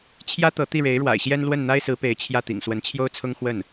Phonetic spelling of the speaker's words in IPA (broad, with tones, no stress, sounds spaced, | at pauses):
t͡ɕʰ j ä˥ t̪ ɤ˧˥ t̪ i˥˩ ɻ e˧˥ ɪ̯ ɻ w a̰˨˩ ɪ̯ ɕ j ɛ˥ n l w ə˥˩ n n̪ a˥ ɪ̯ s ɹ̩˧˥ p e˧˥ ɪ̯ t͡ɕʰ j ä˥˩ t̪ ḭ˨˩ ŋ s w ə˧˥ n t͡ɕʰ j o˥ ʊ̯ t͡sʰ ʊ˥ ŋ x w ə˥˩ n